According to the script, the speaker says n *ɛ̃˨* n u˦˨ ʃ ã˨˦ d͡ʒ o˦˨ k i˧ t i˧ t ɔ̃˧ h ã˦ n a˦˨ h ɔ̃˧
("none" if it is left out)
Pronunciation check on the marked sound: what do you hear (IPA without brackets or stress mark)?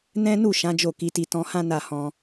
ɛ̃˦